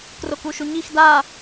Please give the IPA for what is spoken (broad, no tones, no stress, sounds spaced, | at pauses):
k r o k u ʃ u ɲ i x d a